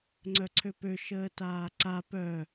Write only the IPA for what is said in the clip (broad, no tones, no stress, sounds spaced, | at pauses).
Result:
ŋ͡ǀ œ ǀʰ ø p ø ʃ əː t aː ǀ a p œ